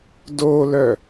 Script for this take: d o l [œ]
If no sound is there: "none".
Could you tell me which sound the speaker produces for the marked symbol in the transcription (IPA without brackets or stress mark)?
œ